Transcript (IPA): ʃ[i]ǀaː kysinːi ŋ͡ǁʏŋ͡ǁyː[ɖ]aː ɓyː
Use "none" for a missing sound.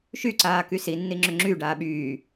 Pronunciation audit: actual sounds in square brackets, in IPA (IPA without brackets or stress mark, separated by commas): y, ɖ